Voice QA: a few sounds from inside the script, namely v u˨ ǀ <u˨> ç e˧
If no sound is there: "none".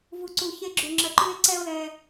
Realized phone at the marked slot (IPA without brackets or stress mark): u˨